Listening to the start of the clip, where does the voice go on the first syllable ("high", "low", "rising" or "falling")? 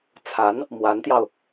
rising